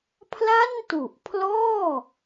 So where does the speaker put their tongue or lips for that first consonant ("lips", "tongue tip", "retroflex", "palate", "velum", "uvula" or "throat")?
lips